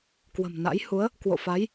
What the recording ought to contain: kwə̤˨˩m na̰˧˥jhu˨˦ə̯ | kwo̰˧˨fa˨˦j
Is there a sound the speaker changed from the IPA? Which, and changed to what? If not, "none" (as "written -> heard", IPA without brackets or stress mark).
none